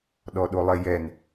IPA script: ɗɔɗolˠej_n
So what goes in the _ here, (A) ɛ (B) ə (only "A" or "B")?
A